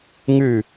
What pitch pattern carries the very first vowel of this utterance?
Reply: falling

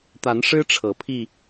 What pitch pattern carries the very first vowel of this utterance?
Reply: rising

